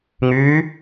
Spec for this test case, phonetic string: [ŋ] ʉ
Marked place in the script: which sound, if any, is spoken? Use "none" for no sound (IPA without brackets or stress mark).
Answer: ŋ